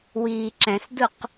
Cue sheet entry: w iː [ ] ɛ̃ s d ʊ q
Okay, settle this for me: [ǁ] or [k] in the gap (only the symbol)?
ǁ